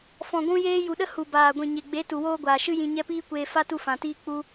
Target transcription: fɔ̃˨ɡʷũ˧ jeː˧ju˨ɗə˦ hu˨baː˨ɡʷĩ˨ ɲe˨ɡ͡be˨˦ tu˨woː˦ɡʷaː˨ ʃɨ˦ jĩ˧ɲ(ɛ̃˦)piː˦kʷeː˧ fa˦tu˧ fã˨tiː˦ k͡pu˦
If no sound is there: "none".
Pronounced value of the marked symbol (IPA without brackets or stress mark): ɛ˦